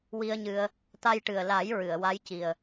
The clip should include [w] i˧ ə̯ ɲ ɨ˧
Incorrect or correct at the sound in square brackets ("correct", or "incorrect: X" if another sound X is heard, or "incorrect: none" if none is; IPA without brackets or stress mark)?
correct